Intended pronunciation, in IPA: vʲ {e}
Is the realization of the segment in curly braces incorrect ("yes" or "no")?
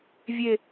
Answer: no